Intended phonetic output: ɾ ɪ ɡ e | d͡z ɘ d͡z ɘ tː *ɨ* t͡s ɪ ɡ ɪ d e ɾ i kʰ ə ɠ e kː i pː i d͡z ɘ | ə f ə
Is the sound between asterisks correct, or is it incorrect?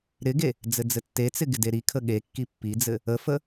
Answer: incorrect